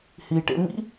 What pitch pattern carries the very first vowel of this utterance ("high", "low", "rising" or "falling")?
low